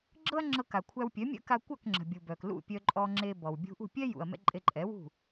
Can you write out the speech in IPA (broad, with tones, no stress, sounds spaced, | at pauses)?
ɡ͡ǁ ɤ˥ ɐ̯ ŋ͡ǁ ɤ˧ k a˩ kʷʰ æ˧ w pʲ œ˩˥ mʲ ə̰˥ k a˧ kʷ œ˥˩ k ŋ͡ǁ ə̤˩ bʲ u˩ b œ˩ k l ṵ˥˩ pʲ œ˧ ǃʼ ɔ˧ ŋ͡ǁ e˧ b ɔ˩ w bʲ ṳ˧ ʔ ṳ˥˩ pʲ ɛ˥ j ṵ˩ ɐ̯ m ɛ̰˧ ǃʼ e˧ ǃʼ ɛ˩˥ w ṳ˥˩